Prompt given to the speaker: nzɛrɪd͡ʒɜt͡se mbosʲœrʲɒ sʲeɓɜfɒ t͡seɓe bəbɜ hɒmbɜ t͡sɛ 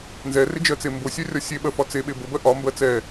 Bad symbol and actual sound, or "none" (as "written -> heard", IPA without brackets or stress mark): h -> ʔ